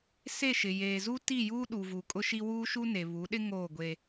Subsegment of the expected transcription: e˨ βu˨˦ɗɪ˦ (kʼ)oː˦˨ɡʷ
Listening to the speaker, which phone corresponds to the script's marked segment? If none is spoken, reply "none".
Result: ŋ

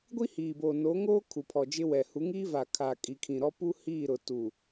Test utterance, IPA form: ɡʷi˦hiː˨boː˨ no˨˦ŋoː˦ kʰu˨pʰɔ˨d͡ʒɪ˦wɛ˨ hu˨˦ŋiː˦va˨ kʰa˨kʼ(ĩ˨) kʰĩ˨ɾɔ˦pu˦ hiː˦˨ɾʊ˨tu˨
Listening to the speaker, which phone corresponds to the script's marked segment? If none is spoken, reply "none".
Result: i˨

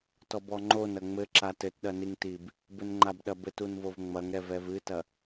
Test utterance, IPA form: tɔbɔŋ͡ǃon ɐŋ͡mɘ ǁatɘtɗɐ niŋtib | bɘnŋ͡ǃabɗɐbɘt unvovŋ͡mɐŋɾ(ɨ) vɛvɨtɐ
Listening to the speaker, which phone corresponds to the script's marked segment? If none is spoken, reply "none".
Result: ɛ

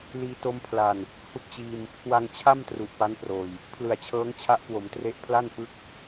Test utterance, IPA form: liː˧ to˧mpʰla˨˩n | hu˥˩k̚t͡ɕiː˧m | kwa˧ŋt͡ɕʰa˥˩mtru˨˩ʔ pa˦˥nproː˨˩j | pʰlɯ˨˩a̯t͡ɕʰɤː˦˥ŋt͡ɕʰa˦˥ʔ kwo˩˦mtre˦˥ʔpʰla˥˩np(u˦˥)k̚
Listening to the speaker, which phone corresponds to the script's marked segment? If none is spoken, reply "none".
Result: ɯ˦˥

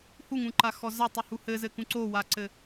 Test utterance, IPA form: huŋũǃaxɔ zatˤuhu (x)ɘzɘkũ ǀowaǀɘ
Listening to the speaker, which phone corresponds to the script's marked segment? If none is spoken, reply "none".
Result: h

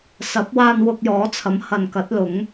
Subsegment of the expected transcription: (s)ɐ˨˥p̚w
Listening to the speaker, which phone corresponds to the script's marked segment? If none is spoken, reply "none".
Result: s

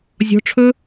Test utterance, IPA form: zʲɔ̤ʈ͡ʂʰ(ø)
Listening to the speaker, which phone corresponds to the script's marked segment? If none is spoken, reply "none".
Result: ɵ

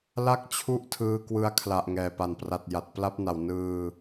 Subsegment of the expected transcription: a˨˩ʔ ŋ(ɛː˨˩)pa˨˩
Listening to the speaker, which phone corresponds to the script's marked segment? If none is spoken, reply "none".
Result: ɛː˨˩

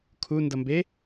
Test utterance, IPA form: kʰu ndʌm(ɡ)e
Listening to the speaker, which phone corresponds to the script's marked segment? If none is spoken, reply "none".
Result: b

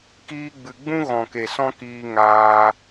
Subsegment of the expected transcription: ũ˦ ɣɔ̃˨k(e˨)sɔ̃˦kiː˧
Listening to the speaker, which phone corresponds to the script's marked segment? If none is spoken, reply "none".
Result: e˨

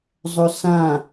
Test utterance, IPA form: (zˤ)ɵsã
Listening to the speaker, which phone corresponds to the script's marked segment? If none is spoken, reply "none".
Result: zˤ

